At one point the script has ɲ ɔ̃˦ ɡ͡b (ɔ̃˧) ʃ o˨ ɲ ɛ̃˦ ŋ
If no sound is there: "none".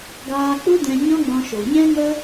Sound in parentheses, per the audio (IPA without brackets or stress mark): ɔ̃˧